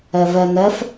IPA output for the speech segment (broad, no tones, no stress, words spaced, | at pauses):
ɛvɛnɛf